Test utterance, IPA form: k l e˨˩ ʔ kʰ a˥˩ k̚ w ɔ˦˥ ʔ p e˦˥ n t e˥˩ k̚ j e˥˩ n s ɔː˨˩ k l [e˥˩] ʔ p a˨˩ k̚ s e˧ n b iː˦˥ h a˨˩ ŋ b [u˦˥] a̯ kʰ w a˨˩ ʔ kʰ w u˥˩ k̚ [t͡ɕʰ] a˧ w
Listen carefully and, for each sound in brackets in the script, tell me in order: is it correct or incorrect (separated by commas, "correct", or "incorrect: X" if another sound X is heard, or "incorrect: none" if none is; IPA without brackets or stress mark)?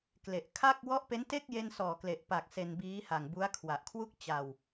incorrect: e˨˩, correct, incorrect: t͡ɕ